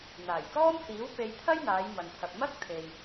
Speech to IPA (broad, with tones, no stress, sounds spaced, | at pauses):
n̪ aː˨˩ j k ɔː˥ m h iː˨˥ w p e˧ j t̪ʰ ɐ˥ j n̪ aː˨˧ j m ɐ˨ n t̪ʰ ɐ˨ p̚ m ɐ˥ k̚ t̪ʰ e˨ j